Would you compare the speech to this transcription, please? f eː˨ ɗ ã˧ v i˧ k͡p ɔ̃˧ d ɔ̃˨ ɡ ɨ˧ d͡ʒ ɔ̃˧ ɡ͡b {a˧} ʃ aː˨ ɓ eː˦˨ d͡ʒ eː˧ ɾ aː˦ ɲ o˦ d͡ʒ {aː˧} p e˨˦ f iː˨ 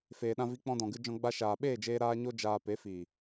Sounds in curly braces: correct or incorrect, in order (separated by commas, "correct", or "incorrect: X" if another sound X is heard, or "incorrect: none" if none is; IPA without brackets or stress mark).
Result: correct, correct